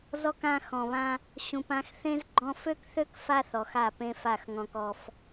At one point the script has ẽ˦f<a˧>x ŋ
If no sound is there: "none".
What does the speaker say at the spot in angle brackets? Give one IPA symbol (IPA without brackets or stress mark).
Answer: a˦˨